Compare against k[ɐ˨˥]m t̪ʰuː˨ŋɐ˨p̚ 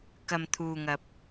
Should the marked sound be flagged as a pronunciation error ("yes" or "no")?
yes